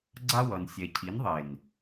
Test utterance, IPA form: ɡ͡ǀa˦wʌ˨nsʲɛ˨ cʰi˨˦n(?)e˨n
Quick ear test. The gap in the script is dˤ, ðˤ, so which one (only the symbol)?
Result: ðˤ